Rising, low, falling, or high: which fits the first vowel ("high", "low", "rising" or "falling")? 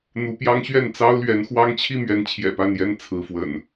rising